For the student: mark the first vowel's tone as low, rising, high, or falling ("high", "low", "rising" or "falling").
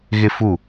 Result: high